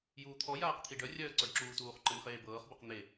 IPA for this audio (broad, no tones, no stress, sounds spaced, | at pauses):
j uː t̪ʰ ɔ j aː q t̪ʰ i ɖ œ rʲ œː ǀ ɔ ɖ ǁ uː t uː χ ǃ ɘ n χ eː b ɤː χ b ɤ q n̪ e